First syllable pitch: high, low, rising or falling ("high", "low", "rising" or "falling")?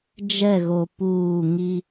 falling